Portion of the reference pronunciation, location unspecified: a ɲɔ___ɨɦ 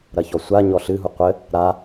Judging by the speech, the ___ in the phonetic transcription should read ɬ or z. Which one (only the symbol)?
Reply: ɬ